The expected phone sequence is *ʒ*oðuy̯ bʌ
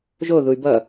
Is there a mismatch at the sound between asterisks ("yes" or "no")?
no